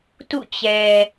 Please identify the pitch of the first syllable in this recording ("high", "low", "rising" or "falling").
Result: falling